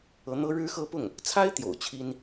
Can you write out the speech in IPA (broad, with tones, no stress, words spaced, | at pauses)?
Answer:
ɤ˧˥n̪ɤ˥ ɻɻ̩˥xɤ˥pʊ˥˩ŋ | t͡sʰa˥ɪ̯t̪jo̰˨˩ʊ̯ t͡ɕʰi˥n